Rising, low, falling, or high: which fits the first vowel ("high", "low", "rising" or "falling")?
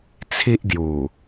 high